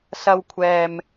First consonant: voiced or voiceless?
voiceless